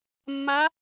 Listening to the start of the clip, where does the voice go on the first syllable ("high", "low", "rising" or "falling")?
rising